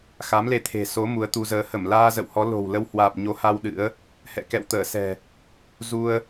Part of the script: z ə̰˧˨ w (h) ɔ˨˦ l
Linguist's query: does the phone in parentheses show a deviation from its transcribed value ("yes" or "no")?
no